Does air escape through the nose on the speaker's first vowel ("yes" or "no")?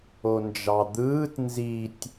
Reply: no